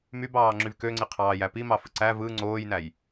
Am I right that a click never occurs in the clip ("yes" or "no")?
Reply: no